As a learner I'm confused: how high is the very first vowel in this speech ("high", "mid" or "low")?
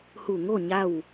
high